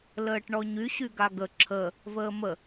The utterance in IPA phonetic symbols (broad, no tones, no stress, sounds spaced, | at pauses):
l əː ʈ ɳ ɔ ɲ y ɕ y ɡ a ɡ ə ǁʰ ə | v əː m ə